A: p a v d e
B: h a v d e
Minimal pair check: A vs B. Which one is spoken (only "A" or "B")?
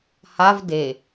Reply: B